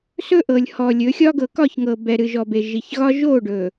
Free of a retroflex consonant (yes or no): no